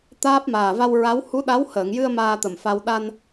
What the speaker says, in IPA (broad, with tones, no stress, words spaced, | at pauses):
t̪aː˦˥p̚ maː˨˩va˧w ɹa˧˥w hu˧˥ɗa˧˥whəː˨˩˨ŋjɨ˧ə̯ maː˧t̪ə˨˩mfa˧w ɗa˧n